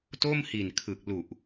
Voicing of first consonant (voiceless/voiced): voiceless